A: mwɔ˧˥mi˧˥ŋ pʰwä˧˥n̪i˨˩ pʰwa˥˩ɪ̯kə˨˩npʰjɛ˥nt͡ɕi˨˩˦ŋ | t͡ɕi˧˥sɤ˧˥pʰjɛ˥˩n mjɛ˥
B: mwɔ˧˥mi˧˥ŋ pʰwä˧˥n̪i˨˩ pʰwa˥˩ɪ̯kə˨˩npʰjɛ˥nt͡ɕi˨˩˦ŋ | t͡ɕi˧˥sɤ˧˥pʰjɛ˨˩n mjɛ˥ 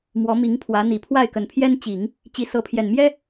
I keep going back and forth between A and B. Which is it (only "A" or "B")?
B